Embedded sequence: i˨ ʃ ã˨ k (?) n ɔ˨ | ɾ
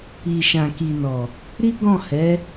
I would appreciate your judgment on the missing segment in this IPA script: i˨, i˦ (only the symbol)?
i˨